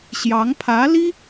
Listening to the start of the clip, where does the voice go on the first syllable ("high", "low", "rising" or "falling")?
rising